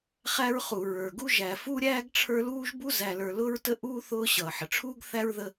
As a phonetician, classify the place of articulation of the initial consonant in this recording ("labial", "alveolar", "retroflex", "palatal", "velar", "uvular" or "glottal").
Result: uvular